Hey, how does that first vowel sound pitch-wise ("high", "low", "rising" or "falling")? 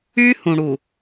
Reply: high